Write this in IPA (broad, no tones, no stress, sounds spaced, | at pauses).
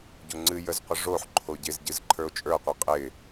ɟ o ŋ͡ǀ ɨ j ə z qʷ ə ʐ o ħ ǃʰ o ɟ ɪ z ɟ ɨ z ǃʰ ə˞ o̯ t͡ʃʼ ə˞ qʷ e qʼ ɪ